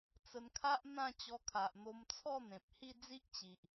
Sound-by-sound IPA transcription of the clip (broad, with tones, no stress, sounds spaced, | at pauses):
t͡s ə˧ n kʰ a˦ ʔ n̪ ã˥˧ t͡ɕ ɔ˧ kʰ a˨ ʔ n̪ o˧ m t͡sʰ ɔ˥˧ n̪ ẽ˨ p̚ h i˥˧ d͡z i˦ ʔ t͡ɕ i˨ ʔ